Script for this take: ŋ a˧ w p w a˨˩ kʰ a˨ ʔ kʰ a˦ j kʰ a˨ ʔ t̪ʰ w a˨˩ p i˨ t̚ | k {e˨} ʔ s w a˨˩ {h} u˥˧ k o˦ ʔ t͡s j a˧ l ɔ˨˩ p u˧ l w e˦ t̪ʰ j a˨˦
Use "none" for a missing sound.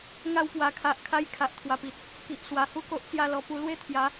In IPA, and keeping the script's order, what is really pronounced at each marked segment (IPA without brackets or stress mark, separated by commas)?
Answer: i˨, h